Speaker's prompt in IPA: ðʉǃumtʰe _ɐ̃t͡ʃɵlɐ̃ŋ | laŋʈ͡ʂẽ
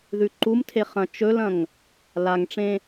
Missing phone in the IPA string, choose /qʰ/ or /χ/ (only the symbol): χ